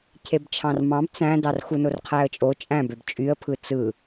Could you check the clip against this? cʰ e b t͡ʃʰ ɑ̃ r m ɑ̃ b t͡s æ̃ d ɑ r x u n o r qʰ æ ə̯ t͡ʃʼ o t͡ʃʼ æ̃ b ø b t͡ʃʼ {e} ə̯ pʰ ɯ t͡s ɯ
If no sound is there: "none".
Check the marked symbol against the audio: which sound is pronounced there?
y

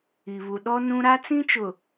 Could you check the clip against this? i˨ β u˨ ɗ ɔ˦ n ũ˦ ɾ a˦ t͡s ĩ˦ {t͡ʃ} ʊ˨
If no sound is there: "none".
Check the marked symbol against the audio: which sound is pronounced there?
t͡ʃ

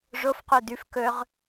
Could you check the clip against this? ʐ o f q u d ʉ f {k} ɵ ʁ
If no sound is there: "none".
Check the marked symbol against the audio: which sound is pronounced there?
k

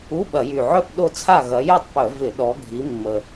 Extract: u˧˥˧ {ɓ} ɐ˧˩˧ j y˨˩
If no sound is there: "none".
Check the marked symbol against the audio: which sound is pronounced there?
ɓ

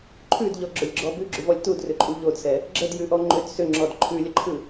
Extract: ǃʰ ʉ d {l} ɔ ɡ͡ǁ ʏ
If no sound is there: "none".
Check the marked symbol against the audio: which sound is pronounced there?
ʎ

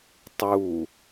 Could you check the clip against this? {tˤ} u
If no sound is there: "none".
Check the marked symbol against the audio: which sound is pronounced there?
tˤ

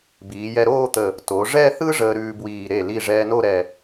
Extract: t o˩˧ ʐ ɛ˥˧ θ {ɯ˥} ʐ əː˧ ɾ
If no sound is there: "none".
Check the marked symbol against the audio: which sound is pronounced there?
ɯ˥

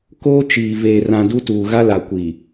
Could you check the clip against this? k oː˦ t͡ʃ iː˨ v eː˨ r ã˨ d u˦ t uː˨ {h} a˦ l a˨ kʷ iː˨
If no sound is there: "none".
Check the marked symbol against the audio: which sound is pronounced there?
ɣ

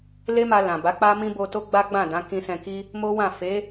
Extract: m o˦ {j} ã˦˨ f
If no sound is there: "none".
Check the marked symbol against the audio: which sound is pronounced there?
w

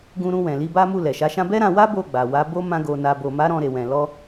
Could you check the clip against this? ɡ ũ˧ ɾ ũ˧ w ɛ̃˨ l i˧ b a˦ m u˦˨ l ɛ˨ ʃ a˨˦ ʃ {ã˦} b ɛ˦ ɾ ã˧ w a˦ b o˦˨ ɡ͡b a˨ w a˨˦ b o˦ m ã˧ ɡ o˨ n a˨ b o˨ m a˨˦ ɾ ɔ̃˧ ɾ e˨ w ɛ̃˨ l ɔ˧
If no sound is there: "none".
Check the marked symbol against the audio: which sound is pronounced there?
ã˦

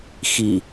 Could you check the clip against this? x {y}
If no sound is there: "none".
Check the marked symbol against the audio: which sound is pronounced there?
i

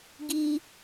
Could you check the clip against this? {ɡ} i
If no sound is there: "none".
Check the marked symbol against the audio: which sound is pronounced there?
ɡ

